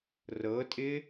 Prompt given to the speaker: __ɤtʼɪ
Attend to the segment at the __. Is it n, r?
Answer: r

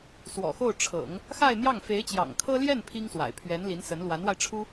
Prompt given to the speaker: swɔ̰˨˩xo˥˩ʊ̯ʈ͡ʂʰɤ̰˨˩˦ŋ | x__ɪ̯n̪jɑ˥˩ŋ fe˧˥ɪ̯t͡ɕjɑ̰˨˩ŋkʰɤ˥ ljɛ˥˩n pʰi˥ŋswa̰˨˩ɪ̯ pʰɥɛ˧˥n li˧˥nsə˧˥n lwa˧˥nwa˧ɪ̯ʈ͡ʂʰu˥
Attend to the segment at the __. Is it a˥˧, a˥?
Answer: a˥˧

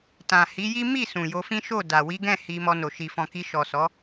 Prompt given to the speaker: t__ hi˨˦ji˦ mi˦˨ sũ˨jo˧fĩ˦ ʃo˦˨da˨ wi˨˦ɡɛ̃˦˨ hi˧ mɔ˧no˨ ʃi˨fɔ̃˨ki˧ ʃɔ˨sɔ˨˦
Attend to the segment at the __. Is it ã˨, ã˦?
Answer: ã˨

